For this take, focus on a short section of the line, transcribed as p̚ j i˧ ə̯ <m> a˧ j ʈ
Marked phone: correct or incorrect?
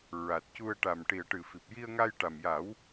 incorrect